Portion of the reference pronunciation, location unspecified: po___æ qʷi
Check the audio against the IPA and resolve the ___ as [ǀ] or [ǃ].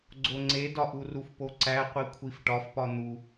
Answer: ǀ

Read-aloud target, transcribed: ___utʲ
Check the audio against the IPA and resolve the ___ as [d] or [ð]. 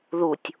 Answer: ð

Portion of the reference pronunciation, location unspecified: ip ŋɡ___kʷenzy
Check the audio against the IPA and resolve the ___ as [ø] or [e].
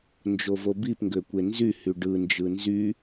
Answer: ø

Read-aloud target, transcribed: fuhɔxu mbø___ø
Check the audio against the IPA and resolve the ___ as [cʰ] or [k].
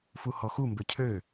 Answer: cʰ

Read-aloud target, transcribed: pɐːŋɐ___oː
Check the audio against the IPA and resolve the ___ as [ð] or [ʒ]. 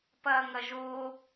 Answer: ʒ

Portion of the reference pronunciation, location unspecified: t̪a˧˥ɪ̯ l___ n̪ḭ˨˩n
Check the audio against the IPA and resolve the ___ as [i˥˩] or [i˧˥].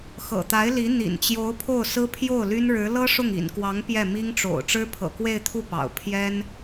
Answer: i˧˥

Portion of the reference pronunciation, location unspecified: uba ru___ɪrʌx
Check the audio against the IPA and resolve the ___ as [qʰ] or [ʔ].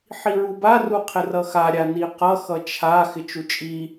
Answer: qʰ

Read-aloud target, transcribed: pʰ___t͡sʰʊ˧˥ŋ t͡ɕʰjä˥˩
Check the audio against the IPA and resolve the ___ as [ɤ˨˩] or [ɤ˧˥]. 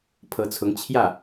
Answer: ɤ˧˥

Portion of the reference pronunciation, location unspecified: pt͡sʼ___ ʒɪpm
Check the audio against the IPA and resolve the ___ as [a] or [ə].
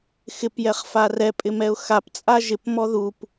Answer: a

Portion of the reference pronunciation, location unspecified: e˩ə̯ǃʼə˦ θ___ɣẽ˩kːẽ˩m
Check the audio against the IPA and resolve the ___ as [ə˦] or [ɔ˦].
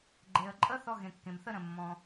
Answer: ɔ˦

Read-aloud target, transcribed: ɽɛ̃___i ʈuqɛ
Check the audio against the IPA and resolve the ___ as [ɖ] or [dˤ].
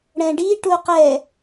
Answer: ɖ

